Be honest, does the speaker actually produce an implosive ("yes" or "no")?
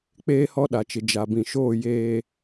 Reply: yes